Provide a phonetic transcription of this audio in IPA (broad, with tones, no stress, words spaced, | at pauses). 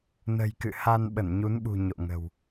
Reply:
nə̤˨˩jkɨ̰˧˨ha˧n ɓə˧˩nɲu˨˦nɓṳ˨˩ ɲo̰˧˨ŋə̤˨˩w